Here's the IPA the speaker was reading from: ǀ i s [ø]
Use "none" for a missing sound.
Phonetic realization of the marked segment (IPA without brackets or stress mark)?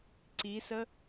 ə